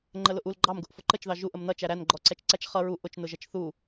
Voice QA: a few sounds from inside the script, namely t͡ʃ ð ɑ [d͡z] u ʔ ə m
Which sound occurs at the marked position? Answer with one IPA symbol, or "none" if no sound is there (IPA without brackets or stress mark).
ʒ